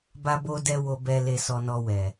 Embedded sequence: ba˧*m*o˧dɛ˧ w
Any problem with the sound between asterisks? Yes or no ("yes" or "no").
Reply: yes